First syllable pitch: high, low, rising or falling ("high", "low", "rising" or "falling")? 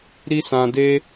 high